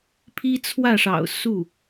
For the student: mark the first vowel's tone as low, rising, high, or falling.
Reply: high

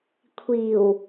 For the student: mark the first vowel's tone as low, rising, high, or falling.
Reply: low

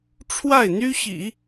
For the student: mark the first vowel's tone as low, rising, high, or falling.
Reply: falling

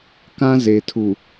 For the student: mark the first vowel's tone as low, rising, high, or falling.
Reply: high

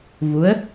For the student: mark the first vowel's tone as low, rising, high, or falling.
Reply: rising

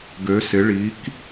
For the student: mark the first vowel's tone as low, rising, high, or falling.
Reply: rising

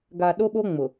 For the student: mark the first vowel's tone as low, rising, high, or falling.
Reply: low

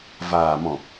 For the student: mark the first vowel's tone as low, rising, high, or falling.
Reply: low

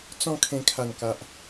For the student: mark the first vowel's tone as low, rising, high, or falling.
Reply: falling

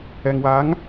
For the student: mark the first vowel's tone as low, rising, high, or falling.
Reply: low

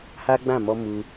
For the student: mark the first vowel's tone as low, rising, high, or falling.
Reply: high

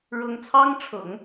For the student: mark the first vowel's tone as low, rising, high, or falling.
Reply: high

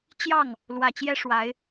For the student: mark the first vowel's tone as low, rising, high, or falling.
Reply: falling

